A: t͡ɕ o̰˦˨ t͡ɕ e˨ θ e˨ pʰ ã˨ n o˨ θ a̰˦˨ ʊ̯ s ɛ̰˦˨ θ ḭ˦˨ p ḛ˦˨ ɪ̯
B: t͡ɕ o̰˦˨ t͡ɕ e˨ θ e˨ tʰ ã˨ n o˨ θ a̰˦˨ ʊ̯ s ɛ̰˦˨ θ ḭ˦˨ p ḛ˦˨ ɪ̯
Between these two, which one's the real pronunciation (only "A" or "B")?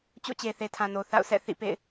B